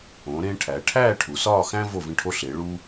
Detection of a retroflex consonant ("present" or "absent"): present